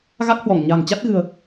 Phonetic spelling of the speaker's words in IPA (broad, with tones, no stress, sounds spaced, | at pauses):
ɣ a˦˥ k̚ h w ɔ˧˩ ŋ ɲ a̤˨˩ ŋ t͡ɕ a˦˥ t̚ ɣ ɨ̤˨˩ ə̯